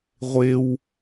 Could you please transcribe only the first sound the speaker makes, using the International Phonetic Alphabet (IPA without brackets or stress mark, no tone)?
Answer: ʁʷ